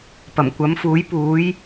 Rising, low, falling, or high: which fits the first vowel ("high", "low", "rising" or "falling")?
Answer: low